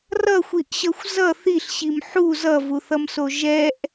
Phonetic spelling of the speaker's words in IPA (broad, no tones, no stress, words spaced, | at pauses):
rʌxʷiʔɕʌxʷ zʌ θiɬɕim ħu zʌvuθʌmso ʒɛʔ